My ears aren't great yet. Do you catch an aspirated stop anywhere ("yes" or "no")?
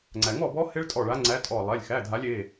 no